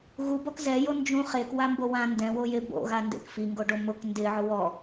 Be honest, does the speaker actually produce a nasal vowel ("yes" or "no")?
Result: yes